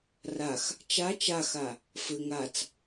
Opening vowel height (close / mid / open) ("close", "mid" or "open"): open